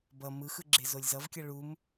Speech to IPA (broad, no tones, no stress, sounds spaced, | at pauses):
b ʌ m ɯ x ɯ ɡ͡ǁ e z o lʲ z ʌ v kʲ ʌ ɭ u m